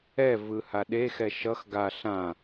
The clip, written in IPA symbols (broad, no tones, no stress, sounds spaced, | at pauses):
ɛ v ɯ h a ɗ e x ɛ ʃ ʌ x ɡ a ɬ ã